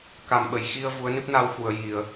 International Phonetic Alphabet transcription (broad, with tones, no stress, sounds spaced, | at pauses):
k a˨˩ m ɓ ə˨˩˨ j x i˧ ə̯ v u˧˥ ə̯ n ɨ˦˥ p̚ n a˧ w x u˨˩˨ ə̯ j i˨˩˨ ə̯